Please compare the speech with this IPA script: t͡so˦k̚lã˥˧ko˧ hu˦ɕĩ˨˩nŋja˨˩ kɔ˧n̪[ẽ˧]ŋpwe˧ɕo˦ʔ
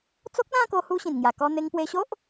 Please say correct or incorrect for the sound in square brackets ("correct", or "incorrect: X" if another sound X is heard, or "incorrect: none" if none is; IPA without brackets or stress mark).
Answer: incorrect: e˧